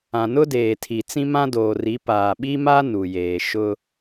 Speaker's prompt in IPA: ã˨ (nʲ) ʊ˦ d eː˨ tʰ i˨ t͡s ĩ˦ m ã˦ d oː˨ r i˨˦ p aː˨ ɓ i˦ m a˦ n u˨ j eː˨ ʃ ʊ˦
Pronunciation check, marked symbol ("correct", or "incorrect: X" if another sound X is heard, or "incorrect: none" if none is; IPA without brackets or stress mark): incorrect: n